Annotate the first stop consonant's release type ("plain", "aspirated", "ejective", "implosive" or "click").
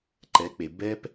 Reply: click